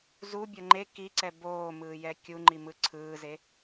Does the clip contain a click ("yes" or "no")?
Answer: yes